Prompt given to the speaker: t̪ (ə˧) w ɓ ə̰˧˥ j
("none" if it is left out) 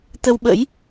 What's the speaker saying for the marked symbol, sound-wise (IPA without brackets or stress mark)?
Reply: ə˧